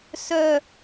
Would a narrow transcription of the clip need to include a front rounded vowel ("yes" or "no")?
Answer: yes